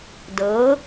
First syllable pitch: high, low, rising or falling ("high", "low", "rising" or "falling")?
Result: rising